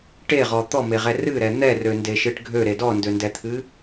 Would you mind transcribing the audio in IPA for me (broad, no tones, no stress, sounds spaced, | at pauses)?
ʈ e ʁ ɔ t̪ ɔ m e ʁ ɛ r ɨ ɾ ɛ n̪ ɛ r ø n d e ʃ ɨ ʈ ɡʱ ø ɾ e d ɔ n d ø n d ɛ t̪ʰ ɨ